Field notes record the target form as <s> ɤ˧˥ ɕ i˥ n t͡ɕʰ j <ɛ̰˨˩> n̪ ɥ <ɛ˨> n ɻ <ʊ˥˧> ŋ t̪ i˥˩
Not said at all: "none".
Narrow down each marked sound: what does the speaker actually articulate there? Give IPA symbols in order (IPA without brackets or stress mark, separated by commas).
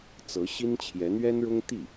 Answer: t͡s, ɛ˧˥, ɛ˥, ʊ˥